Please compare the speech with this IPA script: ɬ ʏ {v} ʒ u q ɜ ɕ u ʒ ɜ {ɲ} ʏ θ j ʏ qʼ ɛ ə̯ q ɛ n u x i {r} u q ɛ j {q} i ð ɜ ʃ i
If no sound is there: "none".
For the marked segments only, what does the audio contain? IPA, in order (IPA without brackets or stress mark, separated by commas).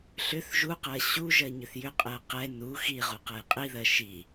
θ, ɲ, ʁ, qʼ